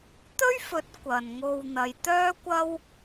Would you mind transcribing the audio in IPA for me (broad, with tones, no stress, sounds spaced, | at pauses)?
t̪ ɵ˥ ɥ f ɵ˨˥ t̚ kʷ ɐ˨ n ŋ o˧ w n̪ ɐ˨˧ j t̪ œː˥ kʷ ɐ˥ w